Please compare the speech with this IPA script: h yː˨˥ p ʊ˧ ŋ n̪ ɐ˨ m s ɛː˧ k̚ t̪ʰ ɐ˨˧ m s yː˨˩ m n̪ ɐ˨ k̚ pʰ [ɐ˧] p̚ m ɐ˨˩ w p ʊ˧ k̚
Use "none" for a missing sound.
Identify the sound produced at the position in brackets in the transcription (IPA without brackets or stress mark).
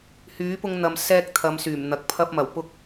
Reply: ɐ˧